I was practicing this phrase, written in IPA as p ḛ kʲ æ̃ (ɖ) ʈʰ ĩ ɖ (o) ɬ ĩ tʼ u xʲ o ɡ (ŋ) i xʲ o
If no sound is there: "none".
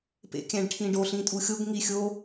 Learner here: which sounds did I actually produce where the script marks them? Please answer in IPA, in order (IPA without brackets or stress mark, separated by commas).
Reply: ɖ, o, ŋ